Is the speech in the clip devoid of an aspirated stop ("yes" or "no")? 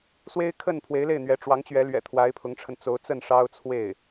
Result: no